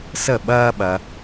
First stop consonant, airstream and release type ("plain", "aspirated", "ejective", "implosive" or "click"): implosive